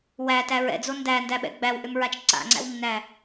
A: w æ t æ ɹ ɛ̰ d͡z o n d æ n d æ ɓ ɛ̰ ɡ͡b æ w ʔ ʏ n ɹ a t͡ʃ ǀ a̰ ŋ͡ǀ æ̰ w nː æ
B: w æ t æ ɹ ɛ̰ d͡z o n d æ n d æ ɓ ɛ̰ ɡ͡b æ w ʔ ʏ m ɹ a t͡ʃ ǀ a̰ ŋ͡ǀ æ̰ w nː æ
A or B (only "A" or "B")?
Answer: B